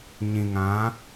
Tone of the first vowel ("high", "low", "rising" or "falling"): low